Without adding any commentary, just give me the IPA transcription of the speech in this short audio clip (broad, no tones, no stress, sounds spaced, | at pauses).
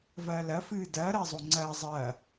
v ɐː l ɐ f ɨː d ɐː ɾ ɐː zˤ o ŋ͡ǀ ɐː zˤ ɐː